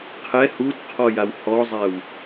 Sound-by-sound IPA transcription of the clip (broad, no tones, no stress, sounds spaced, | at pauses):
qʰ ɛ h u d qʰ ɔ j a w h ɔ zˤ ɛ w